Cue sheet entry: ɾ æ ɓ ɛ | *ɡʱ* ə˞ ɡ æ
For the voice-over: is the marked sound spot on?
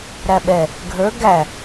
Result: yes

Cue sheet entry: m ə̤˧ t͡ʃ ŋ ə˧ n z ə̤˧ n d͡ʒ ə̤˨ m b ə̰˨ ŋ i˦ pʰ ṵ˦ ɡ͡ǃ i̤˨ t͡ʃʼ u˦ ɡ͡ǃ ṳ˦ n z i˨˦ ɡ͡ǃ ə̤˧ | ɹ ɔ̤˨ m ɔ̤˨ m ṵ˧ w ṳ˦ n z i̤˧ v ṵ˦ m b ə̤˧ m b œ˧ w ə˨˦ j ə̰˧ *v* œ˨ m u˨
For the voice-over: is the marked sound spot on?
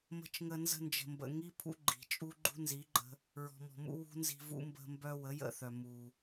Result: no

